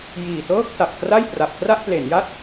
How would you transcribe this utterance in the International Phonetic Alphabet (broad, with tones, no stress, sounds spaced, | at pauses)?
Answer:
j iː˨˩ t ɤː˥˩ k̚ t a˨˩ p̚ k r a˥˩ j p r a˨˩ p̚ k r a˥˩ ʔ p l e˩˦ n j a˥˩ t̚